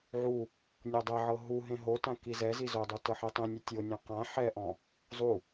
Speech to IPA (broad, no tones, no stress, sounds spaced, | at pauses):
ʕ u | nʲ o dˤ ɛ ʕ ɤ ɦ u ɦ ẽ ɦ o t ã k i z ɛ z i z o dˤ u t ɤ ħ e tˤ ĩ nʲ u tʲ o nʲ ɛ̃ q ã ħ ɛ ʔ ɔ̃ | zˤ u